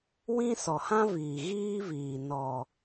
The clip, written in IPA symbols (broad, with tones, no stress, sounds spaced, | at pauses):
w ĩ˦ s ɔ˨ h ã˦ v iː˨ ɣ iː˦ v iː˨ n ɔ˨